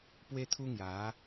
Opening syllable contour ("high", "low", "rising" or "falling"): high